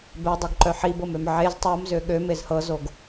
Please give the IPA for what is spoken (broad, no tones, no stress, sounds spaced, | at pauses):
b ɛ dˤ œ ɡ ǃ œ ħ i b ɤ m ø m ʕ e z tˤ ɤ m z ø ɠ ø m e z h ɤ z o ɡ